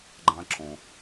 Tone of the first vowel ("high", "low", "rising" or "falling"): high